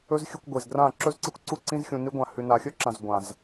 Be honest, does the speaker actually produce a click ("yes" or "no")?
yes